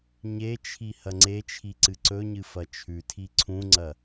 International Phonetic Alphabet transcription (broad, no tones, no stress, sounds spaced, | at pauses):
ɲ e t͡ʃʰ i h ɐ ŋ͡ǀ e t͡ʃʰ i ǀ ɨ ǀ ɵ ɲ ɨ f ɐ t͡ʃʰ ʉ tʰ i ǀʰ ũ ŋ͡ǀ ɐ